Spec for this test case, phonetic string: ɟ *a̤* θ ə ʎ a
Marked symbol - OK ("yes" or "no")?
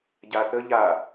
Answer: no